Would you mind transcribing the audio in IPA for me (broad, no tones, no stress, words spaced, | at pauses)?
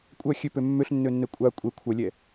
kʷʼœ xʲøpø mːøɬnːønːɛ kʷʼa kʷʼɛ kʷʰœlʲɛ